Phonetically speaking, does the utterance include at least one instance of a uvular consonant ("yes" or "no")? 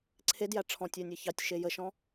no